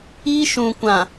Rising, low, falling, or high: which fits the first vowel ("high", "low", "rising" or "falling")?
high